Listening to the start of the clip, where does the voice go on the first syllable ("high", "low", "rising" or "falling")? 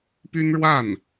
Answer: high